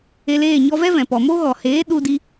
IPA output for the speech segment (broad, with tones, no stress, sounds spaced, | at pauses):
e˧ l eː˦˨ ɲ ɔ˧ v ɛ˦ v ɛ̃˨ p ɔ˨ m o˦ ɣ ɔ˨ h eː˨˦ ɗ u˦ d i˦